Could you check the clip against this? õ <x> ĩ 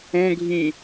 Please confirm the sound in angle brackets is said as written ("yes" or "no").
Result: no